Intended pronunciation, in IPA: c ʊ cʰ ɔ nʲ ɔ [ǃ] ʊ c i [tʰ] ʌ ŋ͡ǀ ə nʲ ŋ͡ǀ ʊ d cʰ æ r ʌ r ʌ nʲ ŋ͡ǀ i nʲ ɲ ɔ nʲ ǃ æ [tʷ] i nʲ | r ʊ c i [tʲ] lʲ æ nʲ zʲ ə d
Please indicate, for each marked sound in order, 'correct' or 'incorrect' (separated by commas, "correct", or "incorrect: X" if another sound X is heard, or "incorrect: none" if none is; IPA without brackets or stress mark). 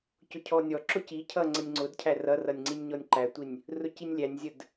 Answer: incorrect: ǁ, incorrect: cʰ, correct, incorrect: nʲ